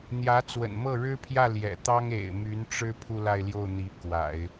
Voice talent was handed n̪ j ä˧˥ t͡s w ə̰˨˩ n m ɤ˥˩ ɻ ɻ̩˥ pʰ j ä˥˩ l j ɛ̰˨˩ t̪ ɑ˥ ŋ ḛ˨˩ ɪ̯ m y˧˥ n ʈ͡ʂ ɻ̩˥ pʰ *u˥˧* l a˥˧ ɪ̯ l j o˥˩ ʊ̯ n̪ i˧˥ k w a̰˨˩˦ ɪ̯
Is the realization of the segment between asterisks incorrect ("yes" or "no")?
no